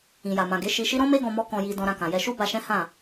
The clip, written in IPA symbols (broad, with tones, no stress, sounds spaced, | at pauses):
ĩ˨ j a˨ m ã˨ ɡ e˨˦ ʃ i˧ ʃ i˦ ɾ ɔ̃˦ m e˦ ɡ ɔ̃˧ m ɔ˦ k ɔ̃˧ j i˧ d ɔ̃˧ ɾ ã˧ k ã˨ j ɛ˧ ʃ u˦ b a˧ ʃ ɛ̃˦ h ã˦˨